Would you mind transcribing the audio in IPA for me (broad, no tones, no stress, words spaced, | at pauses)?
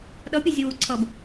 ɗʌpʲe zʲɯwuǀʰʌb